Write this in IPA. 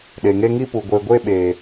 ɗ e˨ ŋ e˦ ŋ i˦ p u˨ ɡʷ e˨ ɡʷ e˦ ɓ eː˨

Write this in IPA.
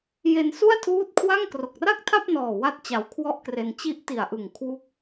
j e˧ n s u˥˩ a̯ tʰ uː˦˥ t̚ kʰ w a˥˩ ŋ k r o˨˩ k̚ r a˥˩ k̚ tʰ a˥˩ p̚ n ɔː˨˩ w a˥˩ t̚ t͡ɕ a˧ w kʰ w ɔ˥˩ ʔ k r e˧ n t͡ɕ i˦˥ ʔ t i˨˩ a̯ ʔ ɯ˨˩ ŋ kʰ w u˦˥ k̚

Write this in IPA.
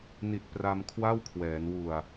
n i˨˩ t̚ p r a˧ m kʰ w a˥˩ w kʰ w ɛː˩˦ n w u˨˩ a̯

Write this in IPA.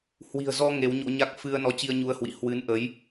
h w i̤˨˩ ə̯ z ɔ˧ ŋ e˨˦ w ɲ o̰˧˥ ɲ a˦˥ k̚ f ɨ˧ ə̯ n ɔ˨˦ t͡ɕ i˧ ə̯ ɲ u˧ ə̯ h w ḭ˧˨ h w ɨ˨˦ n ʔ ə˨˦ j

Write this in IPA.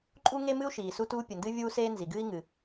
ǃʼ u˥ ŋ e˥ m ɨ˥ u̯ ʃ iː˩ s u˥ t uː˥ pʲ ɨ˩ n d ɨ˥ vʲ uː˥ s eː˥ n z i˩ ɡ ɨː˥ i̯ ŋ ɨ˩

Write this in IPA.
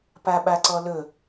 p a ɓ a ǀ ɔ l ɵ

